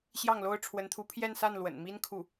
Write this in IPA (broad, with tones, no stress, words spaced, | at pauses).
ɕjɑ˥˩ŋlo˥ʊ̯ ʈ͡ʂʰwə˧˥nt̪ʰu˧˥pʰjɛ˥˧nsa˥˩n lwə̰˨˩nmi˥n kʰu˥˩